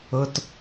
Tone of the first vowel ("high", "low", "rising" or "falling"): low